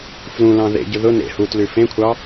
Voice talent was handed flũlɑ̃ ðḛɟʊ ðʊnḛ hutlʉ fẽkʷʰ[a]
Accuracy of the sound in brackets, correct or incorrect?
incorrect: ɑ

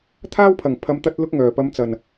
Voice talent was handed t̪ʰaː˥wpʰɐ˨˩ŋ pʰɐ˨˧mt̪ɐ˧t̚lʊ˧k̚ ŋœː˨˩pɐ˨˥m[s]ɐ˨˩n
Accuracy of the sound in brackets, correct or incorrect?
incorrect: t͡s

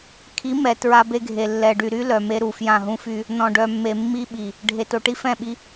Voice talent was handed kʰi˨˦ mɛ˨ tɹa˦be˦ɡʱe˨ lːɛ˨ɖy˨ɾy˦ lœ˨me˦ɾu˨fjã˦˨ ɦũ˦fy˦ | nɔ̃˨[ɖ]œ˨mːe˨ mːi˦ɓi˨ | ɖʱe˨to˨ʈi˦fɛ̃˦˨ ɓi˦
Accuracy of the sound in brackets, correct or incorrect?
correct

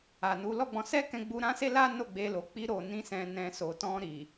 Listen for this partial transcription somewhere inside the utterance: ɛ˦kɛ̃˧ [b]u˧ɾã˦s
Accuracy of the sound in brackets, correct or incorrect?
incorrect: ɡ͡b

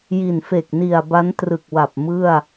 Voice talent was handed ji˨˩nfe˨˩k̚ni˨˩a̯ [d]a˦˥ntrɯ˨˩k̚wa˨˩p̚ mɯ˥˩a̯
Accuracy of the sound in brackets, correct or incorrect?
incorrect: b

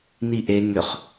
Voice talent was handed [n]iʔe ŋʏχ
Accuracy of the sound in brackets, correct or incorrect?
correct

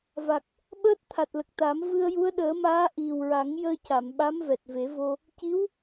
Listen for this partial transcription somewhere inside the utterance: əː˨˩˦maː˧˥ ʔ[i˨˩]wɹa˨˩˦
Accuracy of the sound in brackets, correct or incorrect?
correct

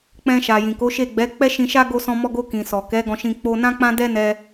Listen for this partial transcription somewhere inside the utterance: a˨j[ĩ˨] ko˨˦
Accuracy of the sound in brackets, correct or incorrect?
correct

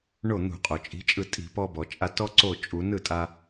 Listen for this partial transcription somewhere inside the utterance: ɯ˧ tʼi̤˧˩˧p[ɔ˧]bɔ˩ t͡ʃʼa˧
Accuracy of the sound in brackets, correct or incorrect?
correct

